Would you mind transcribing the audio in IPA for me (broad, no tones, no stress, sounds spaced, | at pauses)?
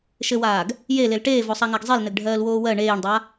ʃ ɘ w aː ɡ | j e l e l ʈ eː v o sˤ a ŋ a ɡ zˤ e l n ɘ ɡ ɖʱ ɜː l w oː w ɜ ɳ eː ɳ dˤ a